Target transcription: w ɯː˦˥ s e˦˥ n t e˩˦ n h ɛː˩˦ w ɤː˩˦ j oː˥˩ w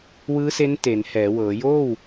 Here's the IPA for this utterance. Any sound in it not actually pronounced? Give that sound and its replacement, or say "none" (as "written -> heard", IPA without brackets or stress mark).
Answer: none